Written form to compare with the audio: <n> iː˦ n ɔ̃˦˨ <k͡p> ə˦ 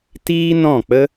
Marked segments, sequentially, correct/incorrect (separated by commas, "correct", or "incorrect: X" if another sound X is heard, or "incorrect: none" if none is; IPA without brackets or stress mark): incorrect: t, correct